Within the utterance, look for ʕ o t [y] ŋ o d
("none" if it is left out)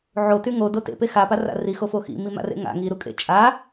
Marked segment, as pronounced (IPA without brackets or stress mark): y